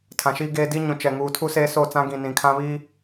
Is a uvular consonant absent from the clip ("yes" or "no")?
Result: yes